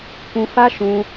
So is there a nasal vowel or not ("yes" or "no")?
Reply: yes